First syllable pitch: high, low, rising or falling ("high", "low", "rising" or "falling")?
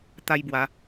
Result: high